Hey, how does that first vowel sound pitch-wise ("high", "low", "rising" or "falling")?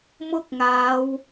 high